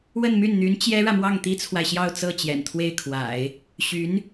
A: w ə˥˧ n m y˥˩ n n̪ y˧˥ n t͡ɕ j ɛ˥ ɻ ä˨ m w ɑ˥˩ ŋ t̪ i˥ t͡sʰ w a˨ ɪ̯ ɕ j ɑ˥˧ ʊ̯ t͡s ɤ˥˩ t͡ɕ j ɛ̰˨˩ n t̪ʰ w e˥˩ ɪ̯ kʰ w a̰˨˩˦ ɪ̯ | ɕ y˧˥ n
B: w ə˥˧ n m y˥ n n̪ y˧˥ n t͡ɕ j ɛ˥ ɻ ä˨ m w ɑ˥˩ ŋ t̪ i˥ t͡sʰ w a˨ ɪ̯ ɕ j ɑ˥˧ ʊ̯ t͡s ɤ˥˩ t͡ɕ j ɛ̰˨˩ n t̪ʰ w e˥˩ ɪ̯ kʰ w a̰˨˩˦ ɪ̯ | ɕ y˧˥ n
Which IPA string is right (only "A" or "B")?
A